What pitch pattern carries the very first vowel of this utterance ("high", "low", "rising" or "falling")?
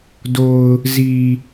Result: low